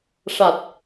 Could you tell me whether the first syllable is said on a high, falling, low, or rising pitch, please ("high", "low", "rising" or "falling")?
low